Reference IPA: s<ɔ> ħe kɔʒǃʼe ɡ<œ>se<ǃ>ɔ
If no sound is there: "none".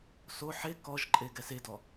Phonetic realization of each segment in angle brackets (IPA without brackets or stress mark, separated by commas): o, ɛ, d